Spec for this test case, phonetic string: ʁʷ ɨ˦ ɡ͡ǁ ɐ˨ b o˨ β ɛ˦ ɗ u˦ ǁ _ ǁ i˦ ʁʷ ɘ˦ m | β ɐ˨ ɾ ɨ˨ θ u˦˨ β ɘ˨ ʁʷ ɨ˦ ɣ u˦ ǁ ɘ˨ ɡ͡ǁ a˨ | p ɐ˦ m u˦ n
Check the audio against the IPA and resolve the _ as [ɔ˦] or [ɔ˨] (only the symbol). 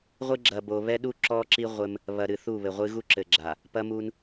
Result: ɔ˦